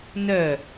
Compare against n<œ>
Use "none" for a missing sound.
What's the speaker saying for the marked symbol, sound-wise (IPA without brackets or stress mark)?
œ